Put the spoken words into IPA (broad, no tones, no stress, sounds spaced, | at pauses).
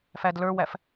f æ d l ə˞ w æ f